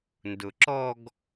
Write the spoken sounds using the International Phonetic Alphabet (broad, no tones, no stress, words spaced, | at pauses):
ndʊǁɔɡ